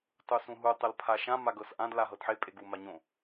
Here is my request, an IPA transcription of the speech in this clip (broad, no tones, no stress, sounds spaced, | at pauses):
tˤ u s ũ ɦ u tˤ ə l pʰ a ʃ ã m a ɡ ɤ s ʔ ã d l a ɦ ɤ d ħ e pʼ e ɡ u m a ɲ õ